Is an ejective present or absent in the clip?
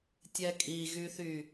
present